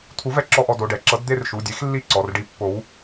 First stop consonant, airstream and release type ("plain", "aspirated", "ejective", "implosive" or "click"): aspirated